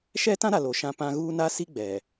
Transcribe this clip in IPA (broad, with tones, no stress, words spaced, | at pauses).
ʃɛ˦tã˦ɾa˨ lo˨ʃã˦pã˦ ɣuː˦na˦ si˦ɡ͡bɛ˨